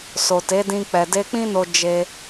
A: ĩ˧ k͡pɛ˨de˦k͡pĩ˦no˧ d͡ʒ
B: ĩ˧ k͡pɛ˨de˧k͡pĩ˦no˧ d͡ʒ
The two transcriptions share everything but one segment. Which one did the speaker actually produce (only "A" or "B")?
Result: B